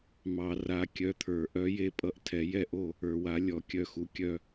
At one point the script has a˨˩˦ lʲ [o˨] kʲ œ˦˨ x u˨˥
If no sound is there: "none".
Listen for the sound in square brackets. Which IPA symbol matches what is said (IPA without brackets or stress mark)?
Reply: ɔ˨